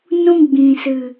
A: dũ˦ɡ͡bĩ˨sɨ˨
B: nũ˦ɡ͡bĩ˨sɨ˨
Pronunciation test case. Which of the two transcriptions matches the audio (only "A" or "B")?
B